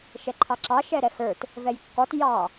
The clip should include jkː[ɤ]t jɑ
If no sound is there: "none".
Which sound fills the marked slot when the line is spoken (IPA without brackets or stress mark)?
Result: ɔ